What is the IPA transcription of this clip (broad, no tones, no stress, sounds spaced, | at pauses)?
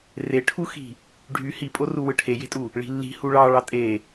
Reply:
r e ʈʰ u x i̤ | ɖʱ y h i pʼ o r u w ɯ ʈʰ e j e̤ tʼ u | ɭ i̤ lː i̤ h u ɭ ɑ ɭ ɑ tʼ e